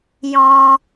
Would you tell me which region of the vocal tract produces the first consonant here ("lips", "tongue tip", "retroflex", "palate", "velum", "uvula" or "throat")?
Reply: palate